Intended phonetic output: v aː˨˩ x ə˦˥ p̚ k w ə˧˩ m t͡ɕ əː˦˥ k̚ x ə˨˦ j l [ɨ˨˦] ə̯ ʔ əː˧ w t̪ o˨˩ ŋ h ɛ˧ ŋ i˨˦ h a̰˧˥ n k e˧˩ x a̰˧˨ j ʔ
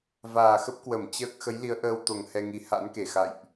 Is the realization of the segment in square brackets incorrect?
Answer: yes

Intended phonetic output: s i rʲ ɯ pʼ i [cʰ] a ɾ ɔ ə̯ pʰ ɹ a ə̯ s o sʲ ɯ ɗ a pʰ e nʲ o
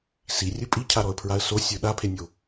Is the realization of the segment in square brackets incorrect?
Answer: no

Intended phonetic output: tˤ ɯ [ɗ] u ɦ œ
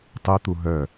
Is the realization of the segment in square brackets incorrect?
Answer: yes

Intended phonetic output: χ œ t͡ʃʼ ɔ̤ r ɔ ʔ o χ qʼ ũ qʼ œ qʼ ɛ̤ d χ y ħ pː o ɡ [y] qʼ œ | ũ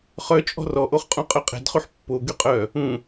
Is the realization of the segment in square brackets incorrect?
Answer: no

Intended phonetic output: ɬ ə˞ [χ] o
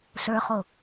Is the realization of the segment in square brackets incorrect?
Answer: no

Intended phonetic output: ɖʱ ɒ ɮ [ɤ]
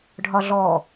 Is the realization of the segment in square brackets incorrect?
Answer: yes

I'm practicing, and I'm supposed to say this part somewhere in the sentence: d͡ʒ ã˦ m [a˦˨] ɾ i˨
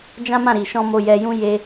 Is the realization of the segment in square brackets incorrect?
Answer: yes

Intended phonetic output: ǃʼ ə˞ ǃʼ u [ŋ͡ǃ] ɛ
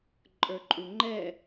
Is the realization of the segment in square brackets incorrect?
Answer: no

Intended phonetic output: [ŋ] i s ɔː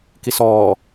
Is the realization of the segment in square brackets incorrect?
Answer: yes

